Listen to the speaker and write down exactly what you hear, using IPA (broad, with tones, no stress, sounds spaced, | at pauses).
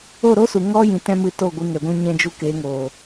o˦˨ ɾ o˦ s u˨ ŋ ɔ˧ j ĩ˨ t ɛ̃˦ m ɨ˧ t o˦˨ ɡʷ ɨ˧ ŋ ɛ˨ ɡʷ ũ˦ ɲ ɛ̃˦ d͡ʒ u˦ k e˨˦ ŋ oː˨